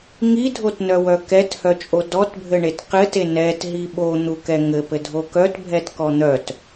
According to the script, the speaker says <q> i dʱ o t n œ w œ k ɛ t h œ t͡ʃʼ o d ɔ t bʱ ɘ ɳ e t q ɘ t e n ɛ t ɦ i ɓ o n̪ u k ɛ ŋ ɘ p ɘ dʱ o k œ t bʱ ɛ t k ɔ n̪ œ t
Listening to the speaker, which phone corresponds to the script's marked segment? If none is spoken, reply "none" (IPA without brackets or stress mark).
ŋ